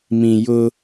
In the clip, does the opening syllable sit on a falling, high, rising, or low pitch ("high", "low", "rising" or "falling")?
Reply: low